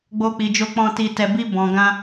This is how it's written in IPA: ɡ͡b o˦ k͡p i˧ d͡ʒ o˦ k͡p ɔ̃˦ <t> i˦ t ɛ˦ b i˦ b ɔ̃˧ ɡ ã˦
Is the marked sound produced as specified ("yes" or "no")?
yes